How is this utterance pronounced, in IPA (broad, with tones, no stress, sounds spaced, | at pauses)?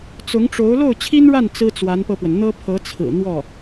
t͡s ʊ˧˥ ŋ ʈ͡ʂ o˧˥ ʊ̯ l o˥˩ ʊ̯ t͡ɕʰ i˥ n ɻ a˥˩ n t͡s ɹ̩˥ t͡s w a˧˥ n p ɤ˧ p w ə˩ n n̪ ɤ˥ pʰ ɤ˧˥ t͡sʰ ɹ̩˨˩ n̪ w ɔ˥˩